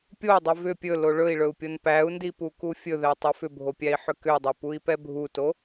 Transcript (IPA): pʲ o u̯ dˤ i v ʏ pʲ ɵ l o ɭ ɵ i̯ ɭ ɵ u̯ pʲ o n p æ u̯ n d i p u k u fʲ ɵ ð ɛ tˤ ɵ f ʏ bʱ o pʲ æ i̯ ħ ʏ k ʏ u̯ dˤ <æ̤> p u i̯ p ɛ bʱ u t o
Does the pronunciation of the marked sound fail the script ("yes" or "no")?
yes